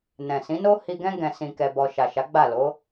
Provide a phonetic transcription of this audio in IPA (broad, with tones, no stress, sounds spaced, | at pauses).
n ɛ̃˨ s ĩ˨˦ n o˦ h i˧ ɡ ɛ̃˦ ɡ ɛ̃˧ s ĩ˧ k ɛ˧ b ɔ˧ ʃ a˨ ʃ a˨˦ ɡ͡b a˦˨ l o˨˦